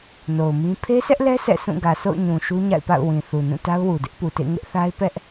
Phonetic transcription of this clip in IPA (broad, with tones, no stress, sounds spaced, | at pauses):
n o˨ ʊ̯ m ĩ˦ pʰ e˦ s ɛ˦ ʔ l ɛ˦ s ɛ̰˦˨ s ũ˦˨ ɡ ä˨ sʰ o̰˦˨ ʊ̯ ɲ ũ˨ ʃ u˦ ɲ a̰˦˨ ɪ̯ p a̰˦˨ ʊ̯ w ĩ˨ θ u˨ n ũ˦˨ t a˦ ʊ̯ w u˨ d ɪ˦ ʔ p u˨ t ḛ˦˨ ŋ ɪ˦ ʔ θ a˦ ɪ̯ p ɛ˦ ʔ